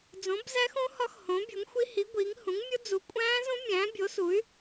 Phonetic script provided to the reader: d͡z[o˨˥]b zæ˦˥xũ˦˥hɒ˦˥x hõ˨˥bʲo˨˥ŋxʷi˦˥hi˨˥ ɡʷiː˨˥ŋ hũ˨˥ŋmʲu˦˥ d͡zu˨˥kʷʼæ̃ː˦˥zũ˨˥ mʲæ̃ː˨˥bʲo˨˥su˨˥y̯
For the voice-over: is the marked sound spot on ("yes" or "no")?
no